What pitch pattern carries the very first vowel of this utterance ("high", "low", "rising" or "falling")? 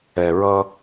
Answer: low